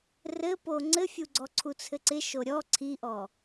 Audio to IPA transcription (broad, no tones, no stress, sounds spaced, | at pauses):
r ɘ p o ŋ͡ǀ ɘ fʲ u ɡ͡ǀ ɔ ǀʰ u t͡sʰ ɘ ǀ ɪ ʃ o ɾʲ ɔ ǀʰ i ʔ ɔ